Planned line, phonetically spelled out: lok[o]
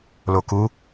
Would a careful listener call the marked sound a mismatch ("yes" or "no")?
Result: yes